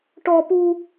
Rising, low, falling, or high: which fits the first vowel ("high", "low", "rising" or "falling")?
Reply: high